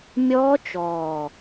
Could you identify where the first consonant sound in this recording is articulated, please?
labial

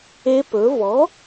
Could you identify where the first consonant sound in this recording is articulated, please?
labial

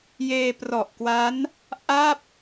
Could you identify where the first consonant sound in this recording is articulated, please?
palatal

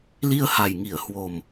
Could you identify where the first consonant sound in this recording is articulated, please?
alveolar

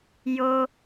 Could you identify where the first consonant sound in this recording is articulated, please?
palatal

